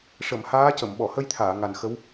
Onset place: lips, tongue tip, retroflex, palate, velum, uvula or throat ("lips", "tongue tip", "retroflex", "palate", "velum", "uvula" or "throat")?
retroflex